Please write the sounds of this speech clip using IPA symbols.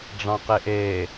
ɖ͡ʐ ɑ̃ q e ʔ e

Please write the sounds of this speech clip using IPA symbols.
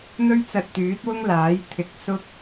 n̪ ɵ˥ ɥ t͡s ɐ˧ t̚ t̪ yː˨˥ t̚ w ʊ˥ ŋ l aː˨˥ j t̪ʰ ɪ˨˥ k̚ s ʊ˧ k̚

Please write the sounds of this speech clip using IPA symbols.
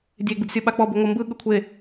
dʲ e ɡ͡b i b sʲ ɤ ɓ a k͡p ɔ b u ŋʷ ɤ m b ɯ ɠ ɯ kʷʰ e

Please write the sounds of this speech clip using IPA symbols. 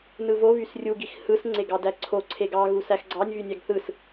n ɯ v o β y s rʲ u ɡ i x h ɯ s ŋ͡ǀ e ɡ ɑ d æ ǀʰ o ǀʰ e ɡ ɑ ɣ u s æ x ɡ͡ǀ ɑ nʲ β y nʲ æ ɡ θ ɯ s

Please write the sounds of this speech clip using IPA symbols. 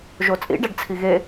ʒ o t͡sʼ ḭ ɖ æ ɖ t͡sʰ i ɣ e

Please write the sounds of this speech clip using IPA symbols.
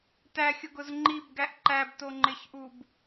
t æ xʲ ʊ ɡ ʊ z ŋ͡ǃ i b ɡ æ ʔ ǃ æ b t o ŋ͡ǃ ɪ ç ʔ u b

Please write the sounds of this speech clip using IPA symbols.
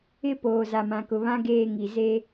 ɪ˦ p oː˨ z a˨ m ã˨ k ʊ˨ β ã˦ ɡ eː˦˨ ŋ i˨ z e˦

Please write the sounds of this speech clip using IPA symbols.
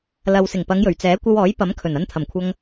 l ɐ˨ w s ɪ˨˩ ŋ p ɐ˨˧ ŋ j ɵ˨˩ ɥ t͡s ɛː˨˥ kʷ ɐ˧ w ɔː˨˥ j p ɐ˨˥ m kʰ ɵ˨˩ n ɐ˧ n t̪ʰ ɐ˨˩ m kʷʰ ɐ˧ ŋ

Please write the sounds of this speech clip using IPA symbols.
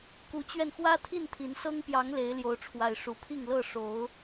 k u˨˦ t͡ɕ ɥ ɛ˧ n x w ä˦ t̪ʰ i˥˨ n t̪ʰ i˨˦ n s ɤ˦ ŋ p j ɑ˨˦ ŋ l e˨˦ ɪ̯ l j o˨˦ ʊ̯ ʈ͡ʂʰ w a˨˩ ɪ̯ ʂ u˨˦ pʰ i˥˨ ŋ l ɤ˥˨ ʂ o˨˦ ʊ̯

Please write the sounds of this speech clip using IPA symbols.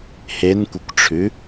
h e n kʷ e kʷ ʈ͡ʂʰ ʉ

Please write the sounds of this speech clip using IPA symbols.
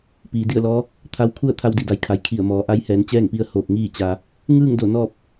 p iː˩ d i˥˨ ə̯ l ɔː˧˥ | t̪ʰ a˧ w kʰ u˥˨ ə̯ t̪ʰ a˧ w d i˧˩ d a˩˧ j kʰ a˩ j kʰ i˧˩ ə̯ m ɔː˩˧ ʔ a˧˥ j h ɛː˩˧ n t͡ɕ ɛː˥˨ ŋ p i˧ ə̯ h oː˧˩ k̚ ŋ iː˥˨ t͡ɕ a˧ | ŋ ɯː˥˨ ŋ d o˧˩ n ɔː˥˨ p̚

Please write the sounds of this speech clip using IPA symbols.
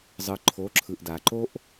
zˤ ɯ˩ ǃʰ o˩˧ ǁʰ ɯ˩ ʔ d a˩ ǃ o˧ ʔ

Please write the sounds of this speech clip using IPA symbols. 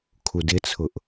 kʰ u d ɪ t͡sʰ ʊ ʔ

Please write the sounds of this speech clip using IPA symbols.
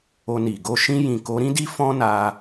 o˧ n i˨ ɡ o˧ ʃ ĩ˧ j ĩ˨ k o˨˦ ɾ ĩ˦ d i˦ f ɔ̃˦ n a˧

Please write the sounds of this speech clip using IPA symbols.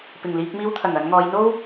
p ɪ˨˩ ŋ l iː˧ k̚ m iː˧ w t̪ʰ ɐ˨˩ ŋ ɐ˨˧ n ŋ ɔː˨˧ j n̪ o˥ w

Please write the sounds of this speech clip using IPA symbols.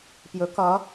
p j ɵ k ʌ

